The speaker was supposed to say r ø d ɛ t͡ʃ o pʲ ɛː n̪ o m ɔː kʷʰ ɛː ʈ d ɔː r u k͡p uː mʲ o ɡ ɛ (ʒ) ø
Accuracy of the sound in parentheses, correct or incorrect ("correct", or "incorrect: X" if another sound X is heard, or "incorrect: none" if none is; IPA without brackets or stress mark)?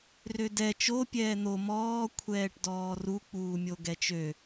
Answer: incorrect: t͡ʃ